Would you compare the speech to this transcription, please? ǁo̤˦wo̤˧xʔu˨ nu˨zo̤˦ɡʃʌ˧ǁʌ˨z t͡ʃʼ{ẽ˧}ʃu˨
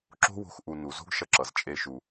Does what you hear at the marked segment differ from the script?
yes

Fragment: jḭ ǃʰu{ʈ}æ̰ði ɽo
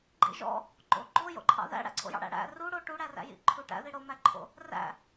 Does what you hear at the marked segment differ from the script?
no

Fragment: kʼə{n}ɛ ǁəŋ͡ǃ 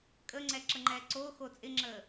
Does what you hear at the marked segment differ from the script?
yes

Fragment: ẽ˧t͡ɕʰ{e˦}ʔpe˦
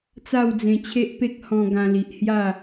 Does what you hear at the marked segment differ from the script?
no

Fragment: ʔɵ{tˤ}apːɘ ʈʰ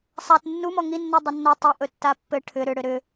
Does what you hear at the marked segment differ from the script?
yes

